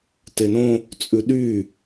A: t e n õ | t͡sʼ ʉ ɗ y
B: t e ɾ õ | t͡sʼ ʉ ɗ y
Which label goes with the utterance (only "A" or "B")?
A